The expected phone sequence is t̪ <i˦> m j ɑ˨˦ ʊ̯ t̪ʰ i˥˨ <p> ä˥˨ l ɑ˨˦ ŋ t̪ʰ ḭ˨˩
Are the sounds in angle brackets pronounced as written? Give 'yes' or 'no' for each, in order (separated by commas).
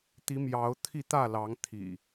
no, no